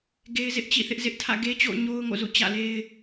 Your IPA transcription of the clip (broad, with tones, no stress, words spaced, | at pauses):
ɡe˦ɪ̯zɪ˦ʔ t͡ɕḭ˦˨θɪ˦ʔ zɪ˦ʔ tʰä̰˦˨ɡe˦t͡ɕo̰˦˨ʊ̯ ɲo˦ʊ̯ŋo̰˦˨zṵ˦˨ t͡ɕä̰˦˨le˦ɪ̯